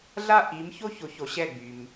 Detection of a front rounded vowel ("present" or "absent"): present